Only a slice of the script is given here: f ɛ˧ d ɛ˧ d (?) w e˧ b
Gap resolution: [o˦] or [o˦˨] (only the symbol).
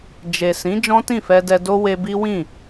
o˦